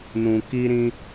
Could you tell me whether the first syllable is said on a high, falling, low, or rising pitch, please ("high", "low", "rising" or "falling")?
low